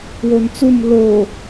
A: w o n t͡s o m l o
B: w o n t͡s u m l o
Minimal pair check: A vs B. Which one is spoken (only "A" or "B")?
B